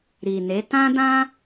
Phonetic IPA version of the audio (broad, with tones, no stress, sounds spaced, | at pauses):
ɾ i˨ n e˨˦ t ã˦ d ã˦